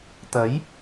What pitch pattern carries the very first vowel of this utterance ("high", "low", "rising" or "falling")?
rising